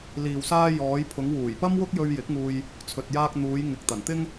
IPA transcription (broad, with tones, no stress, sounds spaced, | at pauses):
l iː˨ w s aː˧ j ɔː˨˧ j pʰ ʊ˨˧ ŋ w uː˨˩ j p ɐ˥ m w ʊ˥ k̚ j ɵ˧ ɥ j ɪ˨˥ k̚ ŋ uː˧ j | t͡sʰ ɵ˨ t̚ j aː˧ k̚ n̪ uː˨˧ j ŋ ɪ˨ k̚ t̪ ɐ˨˩ n t̪ ɪ˥ ŋ